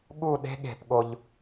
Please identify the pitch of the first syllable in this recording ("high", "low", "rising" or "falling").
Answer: falling